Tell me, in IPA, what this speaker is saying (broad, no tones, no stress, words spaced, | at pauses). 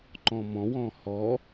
ǃɔ̃mɔ̃wɔ̃ hɔ